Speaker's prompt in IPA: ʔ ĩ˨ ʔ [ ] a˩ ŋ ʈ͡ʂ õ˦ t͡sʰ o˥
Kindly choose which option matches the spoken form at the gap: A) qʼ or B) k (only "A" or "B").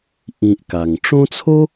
B